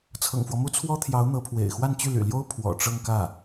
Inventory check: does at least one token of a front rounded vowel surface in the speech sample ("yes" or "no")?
yes